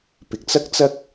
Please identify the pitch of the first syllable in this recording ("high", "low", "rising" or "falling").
low